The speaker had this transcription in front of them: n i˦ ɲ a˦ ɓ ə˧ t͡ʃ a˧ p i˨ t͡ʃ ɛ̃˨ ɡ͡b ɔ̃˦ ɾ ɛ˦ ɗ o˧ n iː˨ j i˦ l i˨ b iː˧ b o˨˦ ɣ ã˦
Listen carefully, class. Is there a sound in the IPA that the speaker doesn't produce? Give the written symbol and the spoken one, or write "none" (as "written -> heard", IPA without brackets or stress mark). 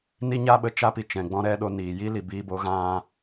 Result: none